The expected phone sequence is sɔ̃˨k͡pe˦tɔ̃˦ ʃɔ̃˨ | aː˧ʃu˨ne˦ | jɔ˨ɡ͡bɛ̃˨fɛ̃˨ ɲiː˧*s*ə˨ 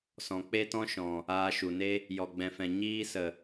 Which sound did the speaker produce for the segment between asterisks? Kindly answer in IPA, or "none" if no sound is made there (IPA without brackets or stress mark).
s